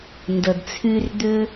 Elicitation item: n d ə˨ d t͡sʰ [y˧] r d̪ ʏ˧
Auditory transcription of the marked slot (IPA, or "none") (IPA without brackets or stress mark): y˧